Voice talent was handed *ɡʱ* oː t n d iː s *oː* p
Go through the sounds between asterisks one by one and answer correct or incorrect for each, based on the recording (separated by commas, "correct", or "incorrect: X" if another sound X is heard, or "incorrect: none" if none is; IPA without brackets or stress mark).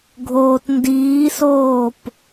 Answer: correct, correct